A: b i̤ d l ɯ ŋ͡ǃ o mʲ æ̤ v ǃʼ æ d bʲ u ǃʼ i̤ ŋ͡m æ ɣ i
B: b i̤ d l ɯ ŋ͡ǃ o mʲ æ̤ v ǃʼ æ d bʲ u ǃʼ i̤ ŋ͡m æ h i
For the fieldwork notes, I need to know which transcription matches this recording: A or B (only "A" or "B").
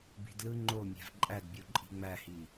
B